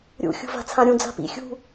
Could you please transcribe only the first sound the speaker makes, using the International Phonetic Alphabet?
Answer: ɾʲ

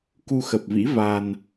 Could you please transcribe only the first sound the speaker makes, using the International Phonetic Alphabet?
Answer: k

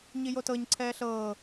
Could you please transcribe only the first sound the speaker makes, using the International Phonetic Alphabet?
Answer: ɲ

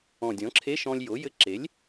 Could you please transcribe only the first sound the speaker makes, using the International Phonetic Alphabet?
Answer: ɔ̃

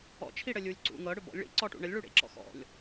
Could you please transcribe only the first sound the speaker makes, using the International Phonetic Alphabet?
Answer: ɔ̰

